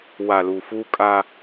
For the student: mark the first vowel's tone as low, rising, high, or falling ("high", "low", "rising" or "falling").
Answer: low